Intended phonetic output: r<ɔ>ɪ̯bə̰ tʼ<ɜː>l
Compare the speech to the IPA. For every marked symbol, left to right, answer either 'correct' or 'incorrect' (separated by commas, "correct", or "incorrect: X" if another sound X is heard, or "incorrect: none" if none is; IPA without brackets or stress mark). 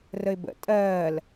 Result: incorrect: ə, correct